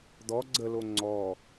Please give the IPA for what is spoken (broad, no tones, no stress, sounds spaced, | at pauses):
d̪ ɔ ɡ͡ǀ ə l o ŋ͡ǀ ɔ